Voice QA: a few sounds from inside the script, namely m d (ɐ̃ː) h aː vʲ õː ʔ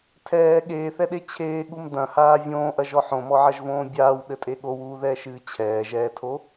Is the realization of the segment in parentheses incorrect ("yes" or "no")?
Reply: yes